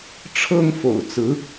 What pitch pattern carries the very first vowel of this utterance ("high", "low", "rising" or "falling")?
high